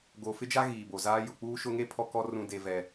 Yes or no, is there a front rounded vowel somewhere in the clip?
no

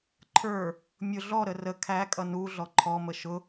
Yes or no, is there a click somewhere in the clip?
yes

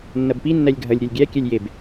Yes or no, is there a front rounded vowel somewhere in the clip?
no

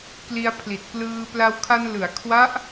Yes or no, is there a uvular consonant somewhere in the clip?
no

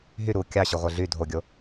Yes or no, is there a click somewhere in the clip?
no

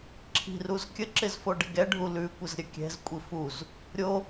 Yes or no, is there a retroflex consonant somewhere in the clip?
yes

